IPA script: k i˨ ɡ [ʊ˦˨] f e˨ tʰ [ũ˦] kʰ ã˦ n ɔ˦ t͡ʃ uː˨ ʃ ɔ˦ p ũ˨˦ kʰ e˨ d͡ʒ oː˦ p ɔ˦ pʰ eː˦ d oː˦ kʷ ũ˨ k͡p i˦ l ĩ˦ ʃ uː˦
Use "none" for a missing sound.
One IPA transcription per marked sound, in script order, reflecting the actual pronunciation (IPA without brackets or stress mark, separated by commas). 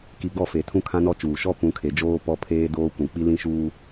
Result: ɔ˦˨, ũ˦